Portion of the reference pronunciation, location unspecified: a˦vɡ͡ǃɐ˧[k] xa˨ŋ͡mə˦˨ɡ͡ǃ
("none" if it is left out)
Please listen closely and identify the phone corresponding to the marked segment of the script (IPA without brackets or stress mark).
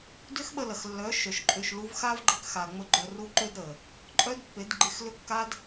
k